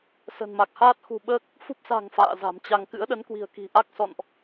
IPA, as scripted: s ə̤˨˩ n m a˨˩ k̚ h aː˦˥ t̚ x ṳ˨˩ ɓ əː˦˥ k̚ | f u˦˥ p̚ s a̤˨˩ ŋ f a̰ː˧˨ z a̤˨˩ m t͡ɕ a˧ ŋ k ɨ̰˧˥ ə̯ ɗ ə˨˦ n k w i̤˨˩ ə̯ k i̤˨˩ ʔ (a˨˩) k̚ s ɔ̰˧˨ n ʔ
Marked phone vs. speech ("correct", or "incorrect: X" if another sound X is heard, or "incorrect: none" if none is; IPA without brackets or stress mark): incorrect: a˦˥